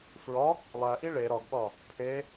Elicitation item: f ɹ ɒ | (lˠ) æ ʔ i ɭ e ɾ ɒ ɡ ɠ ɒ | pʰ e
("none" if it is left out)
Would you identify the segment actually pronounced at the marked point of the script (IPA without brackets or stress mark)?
lˠ